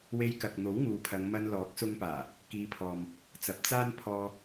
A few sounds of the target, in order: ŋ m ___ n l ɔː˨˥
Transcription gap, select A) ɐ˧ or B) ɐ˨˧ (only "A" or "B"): A